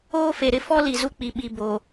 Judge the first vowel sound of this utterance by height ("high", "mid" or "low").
mid